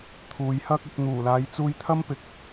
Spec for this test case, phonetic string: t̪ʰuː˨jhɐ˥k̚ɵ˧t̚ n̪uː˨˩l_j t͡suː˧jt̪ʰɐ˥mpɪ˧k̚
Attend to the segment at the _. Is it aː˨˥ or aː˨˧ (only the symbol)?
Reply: aː˨˧